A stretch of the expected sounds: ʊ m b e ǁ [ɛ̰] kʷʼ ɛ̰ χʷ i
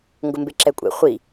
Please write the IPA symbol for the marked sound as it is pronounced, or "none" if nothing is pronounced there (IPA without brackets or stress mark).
ɛ